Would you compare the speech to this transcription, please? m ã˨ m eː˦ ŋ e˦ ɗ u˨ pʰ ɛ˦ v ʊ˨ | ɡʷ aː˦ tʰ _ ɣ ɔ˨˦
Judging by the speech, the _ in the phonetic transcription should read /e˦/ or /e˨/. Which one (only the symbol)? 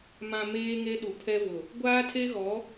e˦